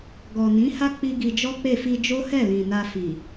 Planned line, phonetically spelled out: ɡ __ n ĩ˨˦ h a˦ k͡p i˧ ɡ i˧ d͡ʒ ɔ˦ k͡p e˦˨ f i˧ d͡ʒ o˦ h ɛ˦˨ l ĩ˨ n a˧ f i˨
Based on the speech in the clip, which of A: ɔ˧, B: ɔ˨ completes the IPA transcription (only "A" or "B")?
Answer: B